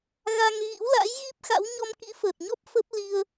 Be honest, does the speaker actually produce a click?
no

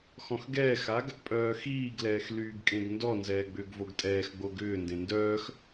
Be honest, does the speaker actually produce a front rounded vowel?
yes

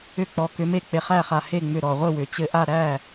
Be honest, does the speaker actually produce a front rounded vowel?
yes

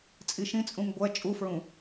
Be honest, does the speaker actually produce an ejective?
yes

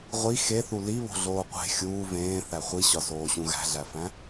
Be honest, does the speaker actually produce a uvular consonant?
yes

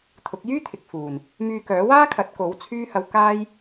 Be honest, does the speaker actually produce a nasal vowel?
no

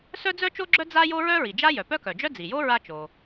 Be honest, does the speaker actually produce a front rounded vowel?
yes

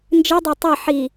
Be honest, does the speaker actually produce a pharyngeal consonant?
yes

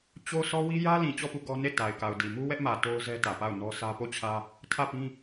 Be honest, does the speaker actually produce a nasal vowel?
yes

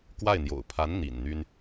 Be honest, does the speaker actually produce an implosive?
no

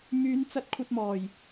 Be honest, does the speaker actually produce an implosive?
no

